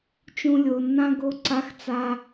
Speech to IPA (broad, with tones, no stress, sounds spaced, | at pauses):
t͡ʃ ũ˧ lʲ o˨ nː ã˦ ɡ o˦ ǀ a˦ x t͡s a˦